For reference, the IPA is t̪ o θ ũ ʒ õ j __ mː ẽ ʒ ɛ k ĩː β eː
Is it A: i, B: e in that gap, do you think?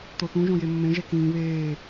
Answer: B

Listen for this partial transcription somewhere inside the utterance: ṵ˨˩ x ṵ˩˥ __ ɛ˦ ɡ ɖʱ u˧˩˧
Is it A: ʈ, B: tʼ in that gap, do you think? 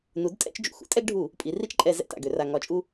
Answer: B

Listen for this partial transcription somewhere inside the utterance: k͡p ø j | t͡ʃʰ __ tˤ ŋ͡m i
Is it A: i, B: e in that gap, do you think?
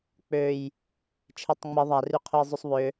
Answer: B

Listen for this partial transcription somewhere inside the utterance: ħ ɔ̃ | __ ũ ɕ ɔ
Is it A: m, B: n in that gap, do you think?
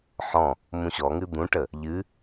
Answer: A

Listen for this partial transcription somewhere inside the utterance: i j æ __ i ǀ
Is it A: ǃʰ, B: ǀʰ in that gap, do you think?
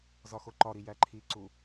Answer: A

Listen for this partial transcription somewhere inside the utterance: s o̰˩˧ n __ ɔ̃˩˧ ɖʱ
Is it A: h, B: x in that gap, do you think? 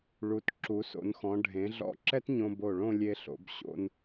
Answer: B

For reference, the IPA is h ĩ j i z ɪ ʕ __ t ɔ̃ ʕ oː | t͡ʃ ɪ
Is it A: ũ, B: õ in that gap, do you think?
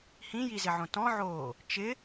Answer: B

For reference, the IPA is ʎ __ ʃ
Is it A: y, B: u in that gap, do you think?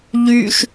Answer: A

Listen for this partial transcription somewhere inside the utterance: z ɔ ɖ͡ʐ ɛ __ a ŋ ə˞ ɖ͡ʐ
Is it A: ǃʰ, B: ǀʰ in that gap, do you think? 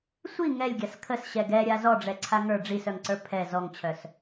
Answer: B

